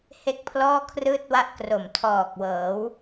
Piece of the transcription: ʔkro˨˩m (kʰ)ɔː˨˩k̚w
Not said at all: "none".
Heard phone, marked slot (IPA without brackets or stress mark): tʰ